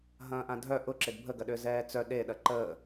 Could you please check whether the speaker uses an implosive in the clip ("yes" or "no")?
yes